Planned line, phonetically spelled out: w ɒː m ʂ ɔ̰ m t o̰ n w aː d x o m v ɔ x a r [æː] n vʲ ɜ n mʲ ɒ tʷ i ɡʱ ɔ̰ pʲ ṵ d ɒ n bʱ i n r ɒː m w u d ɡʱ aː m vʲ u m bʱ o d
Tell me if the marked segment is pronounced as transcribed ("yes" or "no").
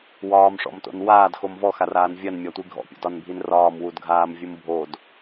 no